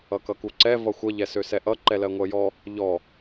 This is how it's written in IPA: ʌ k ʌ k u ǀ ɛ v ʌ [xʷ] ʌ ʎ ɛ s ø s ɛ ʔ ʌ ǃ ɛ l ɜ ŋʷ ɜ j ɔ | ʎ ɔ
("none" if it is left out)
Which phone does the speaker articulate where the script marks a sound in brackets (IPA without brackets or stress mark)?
xʷ